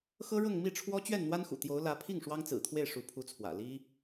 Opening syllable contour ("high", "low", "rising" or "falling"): high